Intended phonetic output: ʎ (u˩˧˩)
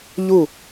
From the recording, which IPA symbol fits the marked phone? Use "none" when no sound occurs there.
u˧˩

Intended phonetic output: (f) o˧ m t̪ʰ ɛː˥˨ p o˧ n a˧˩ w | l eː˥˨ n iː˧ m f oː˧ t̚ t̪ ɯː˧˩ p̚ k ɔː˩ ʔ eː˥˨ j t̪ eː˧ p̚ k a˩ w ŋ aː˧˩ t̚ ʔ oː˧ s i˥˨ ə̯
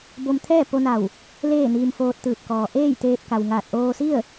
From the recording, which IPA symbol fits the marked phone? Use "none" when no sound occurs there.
b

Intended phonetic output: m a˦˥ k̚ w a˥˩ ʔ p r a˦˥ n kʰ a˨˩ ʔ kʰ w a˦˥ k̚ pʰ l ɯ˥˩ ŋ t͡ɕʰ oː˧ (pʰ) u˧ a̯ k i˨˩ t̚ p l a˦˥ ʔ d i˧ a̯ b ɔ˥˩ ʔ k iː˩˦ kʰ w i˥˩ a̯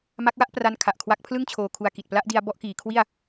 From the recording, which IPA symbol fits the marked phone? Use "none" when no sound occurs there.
kʰ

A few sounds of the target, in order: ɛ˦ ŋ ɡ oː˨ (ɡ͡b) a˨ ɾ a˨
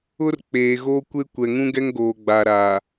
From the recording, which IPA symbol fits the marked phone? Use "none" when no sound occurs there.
ɡ͡b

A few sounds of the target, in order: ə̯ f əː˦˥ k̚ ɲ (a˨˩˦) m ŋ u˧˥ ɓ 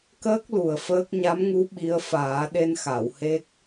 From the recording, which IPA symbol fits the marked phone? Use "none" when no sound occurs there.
a˧˥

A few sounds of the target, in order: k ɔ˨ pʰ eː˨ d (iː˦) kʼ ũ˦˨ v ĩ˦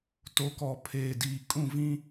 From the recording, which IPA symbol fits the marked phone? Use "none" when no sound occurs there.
iː˨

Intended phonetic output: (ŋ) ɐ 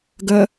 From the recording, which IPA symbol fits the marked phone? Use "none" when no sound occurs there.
ɡ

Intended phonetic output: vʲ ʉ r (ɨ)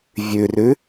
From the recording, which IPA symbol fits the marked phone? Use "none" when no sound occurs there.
ʉ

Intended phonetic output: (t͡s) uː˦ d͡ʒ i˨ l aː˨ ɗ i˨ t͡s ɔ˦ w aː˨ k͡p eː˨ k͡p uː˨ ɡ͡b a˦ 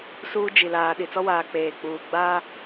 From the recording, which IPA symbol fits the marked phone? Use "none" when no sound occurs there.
s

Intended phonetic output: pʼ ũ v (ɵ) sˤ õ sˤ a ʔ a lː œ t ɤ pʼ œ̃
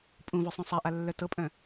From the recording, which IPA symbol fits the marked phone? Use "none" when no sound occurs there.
ɵ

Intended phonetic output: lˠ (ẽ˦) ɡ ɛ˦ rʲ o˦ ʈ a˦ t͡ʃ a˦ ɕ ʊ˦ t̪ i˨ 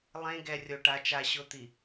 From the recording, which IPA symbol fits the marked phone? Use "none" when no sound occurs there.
ẽ˦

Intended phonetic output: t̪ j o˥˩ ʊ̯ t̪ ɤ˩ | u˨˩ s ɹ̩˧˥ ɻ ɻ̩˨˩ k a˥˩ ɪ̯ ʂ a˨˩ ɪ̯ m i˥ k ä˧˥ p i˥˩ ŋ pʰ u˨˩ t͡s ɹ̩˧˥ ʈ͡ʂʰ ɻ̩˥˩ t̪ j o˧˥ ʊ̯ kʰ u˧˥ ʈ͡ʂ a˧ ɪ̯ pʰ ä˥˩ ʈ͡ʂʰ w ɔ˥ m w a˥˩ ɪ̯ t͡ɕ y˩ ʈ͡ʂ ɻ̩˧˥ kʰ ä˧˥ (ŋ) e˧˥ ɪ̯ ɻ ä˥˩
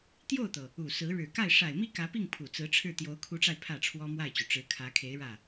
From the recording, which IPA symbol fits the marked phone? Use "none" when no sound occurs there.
kʰ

